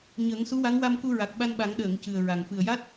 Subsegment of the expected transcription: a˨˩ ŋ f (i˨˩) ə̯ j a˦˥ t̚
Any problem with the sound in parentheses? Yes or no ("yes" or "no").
yes